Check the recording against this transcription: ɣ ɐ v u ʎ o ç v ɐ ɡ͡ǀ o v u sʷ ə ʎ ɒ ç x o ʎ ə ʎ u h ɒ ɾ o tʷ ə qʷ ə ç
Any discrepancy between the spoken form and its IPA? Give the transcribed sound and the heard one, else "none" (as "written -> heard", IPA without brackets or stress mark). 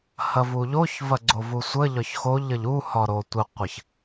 ɣ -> h